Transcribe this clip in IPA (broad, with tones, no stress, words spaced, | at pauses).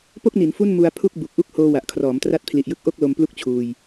po˥˩k̚ni˩˦n fu˥˩nmu˧a̯ pʰu˥˩k̚ bu˨˩k̚ʔu˥˩k̚ hoː˧ wa˨˩ʔkʰrɔː˩˦mtra˦˥t̚ pʰli˨˩ʔjɯ˦˥k̚ ʔo˥˩k̚ lo˧mplu˥˩k̚t͡ɕʰuː˧j